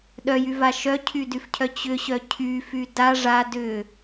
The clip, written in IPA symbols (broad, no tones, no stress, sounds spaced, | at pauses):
ɗ œ j y v a ʃ œ cʰ y d y f cʰ œ t͡ɕ ʏ ɕ œ cʰ y f y d a ʐ a d ʏ